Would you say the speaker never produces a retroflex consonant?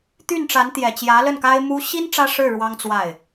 no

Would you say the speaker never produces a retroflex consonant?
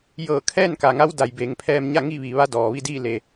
yes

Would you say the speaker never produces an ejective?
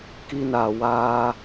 yes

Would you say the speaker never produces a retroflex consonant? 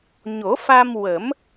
yes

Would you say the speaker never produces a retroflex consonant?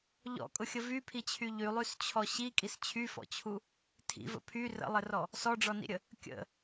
no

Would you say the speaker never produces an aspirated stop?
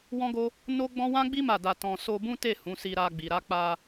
yes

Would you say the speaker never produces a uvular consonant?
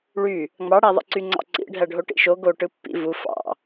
yes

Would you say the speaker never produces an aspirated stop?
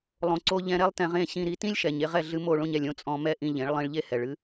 yes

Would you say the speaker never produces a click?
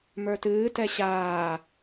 yes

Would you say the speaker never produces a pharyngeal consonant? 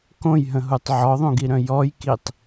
no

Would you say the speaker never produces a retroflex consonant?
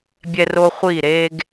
yes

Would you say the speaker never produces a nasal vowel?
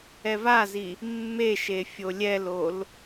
yes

